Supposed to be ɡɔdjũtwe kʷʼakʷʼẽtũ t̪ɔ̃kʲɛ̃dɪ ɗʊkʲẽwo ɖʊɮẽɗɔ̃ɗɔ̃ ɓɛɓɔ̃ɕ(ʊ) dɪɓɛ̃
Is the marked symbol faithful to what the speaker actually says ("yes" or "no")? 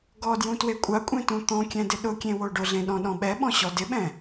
no